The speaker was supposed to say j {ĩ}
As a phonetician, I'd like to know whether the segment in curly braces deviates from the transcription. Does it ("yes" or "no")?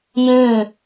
no